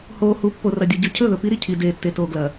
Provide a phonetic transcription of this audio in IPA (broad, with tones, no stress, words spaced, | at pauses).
hoː˨hu˨˦ pːo˨rɐ˨dʲo˨ ɟʉ˨cʰɵ˦˨ðɵ˨ pi˦ɾi˨ cʰi˨deː˨ tːe˨toː˨ɡlɐ˨